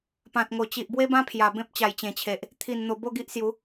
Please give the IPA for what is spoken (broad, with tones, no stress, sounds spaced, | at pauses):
p ã˨ t̚ ŋ o˨˩ t͡ɕ i˨ ʔ b w e˦ b ã˦ pʰ j a˨˩ b ẽ˦ p̚ t͡ɕ a˨˩ j t͡ɕ ẽ˨˩ t͡ɕʰ e˨ ʔ | t̪ʰ i˨˩ n n̪ o˨˩ b o˥˧ ɡ i˦ ʔ s j u˨˦